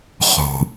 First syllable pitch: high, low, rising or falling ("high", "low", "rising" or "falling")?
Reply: low